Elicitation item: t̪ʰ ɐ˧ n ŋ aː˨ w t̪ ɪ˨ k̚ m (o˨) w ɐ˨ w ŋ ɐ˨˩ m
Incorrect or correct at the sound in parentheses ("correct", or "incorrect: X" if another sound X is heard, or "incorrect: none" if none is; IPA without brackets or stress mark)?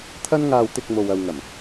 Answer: correct